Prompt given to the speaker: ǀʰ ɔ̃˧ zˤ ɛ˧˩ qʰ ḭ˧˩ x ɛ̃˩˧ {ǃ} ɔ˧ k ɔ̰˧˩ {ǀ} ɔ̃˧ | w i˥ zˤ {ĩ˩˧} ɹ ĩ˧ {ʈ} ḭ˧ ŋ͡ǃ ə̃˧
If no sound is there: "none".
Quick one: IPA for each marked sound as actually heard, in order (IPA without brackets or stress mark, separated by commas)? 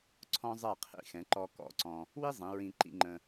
ǃ, ǀ, ĩ˩˧, ǃ